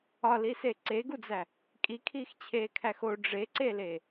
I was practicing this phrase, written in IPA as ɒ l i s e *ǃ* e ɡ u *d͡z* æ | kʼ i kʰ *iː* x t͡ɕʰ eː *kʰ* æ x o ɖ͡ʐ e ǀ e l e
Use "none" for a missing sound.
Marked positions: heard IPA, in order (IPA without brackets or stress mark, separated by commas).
ǀ, d͡z, iː, kʰ